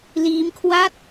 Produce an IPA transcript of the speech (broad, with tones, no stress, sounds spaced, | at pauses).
l iː˦˥ m kʰ w a˥˩ t̚